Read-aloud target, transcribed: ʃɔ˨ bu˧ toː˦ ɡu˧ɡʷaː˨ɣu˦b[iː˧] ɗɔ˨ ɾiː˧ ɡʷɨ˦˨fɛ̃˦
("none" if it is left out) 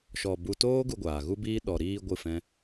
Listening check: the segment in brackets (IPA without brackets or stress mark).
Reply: iː˦